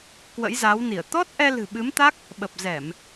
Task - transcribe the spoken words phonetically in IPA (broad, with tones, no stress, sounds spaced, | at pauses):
k w ə̰˧˥ j z aː˨˦ w n i˧˩ ə̯ t̪ ɔ˦˥ t̚ ʔ ɛ˧ l ɨ̤˨˩ ɓ ɨ˨˦ m t̪ a˦˥ k̚ | ɓ ə˨˩ p̚ z ɛ˧˩˨ m